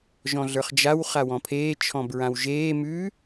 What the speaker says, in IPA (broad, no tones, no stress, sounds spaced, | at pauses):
ʒ ɔ̃ ɮ ə˞ χ d͡ʒ a w χ a w ɔ̃ pʰ eː t͡ʃʰ ɔ̃ b ɹ ã w ʒ eː m ʉ